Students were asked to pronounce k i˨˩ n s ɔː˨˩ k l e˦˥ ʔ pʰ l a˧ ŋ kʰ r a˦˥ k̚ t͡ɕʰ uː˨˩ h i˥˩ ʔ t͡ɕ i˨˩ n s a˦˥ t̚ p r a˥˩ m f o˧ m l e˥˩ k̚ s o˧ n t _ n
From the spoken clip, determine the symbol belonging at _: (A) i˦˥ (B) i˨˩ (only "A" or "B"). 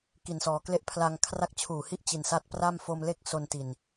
B